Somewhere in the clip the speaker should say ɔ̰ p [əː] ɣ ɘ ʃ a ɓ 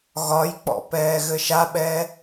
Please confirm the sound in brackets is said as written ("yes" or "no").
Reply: no